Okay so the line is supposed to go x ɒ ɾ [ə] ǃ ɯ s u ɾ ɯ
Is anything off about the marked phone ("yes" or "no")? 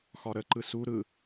no